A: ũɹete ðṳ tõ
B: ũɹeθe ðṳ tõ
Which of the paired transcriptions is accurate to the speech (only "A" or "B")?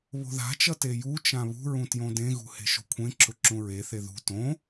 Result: B